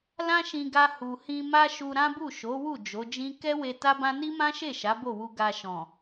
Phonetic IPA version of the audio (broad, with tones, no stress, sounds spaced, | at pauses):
l ã˦ ʃ ĩ˧ ɡ a˧ h u˨ h ĩ˧ m a˦ ʃ u˧ ɾ ã˦ b u˦˨ ʃ o˨˦ w u˦˨ d͡ʒ o˨˦ d͡ʒ ĩ˦ k ɛ˦ w e˧ t a˦ b ã˦ n i˦ m ã˦ ʃ e˦˨ ʃ a˨˦ b o˦˨ w u˧ ɡ a˧ ʃ ɔ̃˨